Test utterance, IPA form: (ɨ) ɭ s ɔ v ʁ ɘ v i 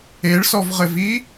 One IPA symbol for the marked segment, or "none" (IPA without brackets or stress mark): e